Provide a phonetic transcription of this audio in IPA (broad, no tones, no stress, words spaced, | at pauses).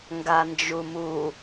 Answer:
ŋɡand͡ʒumu